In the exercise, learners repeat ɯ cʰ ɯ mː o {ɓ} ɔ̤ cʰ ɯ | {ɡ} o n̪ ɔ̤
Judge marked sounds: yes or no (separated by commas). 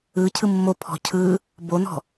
no, no